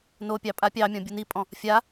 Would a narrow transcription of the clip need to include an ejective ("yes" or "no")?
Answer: yes